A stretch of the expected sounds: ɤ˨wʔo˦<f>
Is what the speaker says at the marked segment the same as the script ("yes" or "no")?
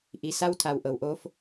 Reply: yes